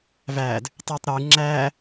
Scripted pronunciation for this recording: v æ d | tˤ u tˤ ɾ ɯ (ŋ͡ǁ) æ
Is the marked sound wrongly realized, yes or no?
no